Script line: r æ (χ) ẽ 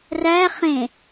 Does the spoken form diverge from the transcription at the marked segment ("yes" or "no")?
no